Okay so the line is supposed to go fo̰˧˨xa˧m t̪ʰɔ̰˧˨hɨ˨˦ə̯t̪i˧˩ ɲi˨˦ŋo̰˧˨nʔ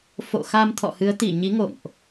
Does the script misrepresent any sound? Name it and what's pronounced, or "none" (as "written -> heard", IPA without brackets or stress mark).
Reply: none